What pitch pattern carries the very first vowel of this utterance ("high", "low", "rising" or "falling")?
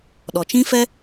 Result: low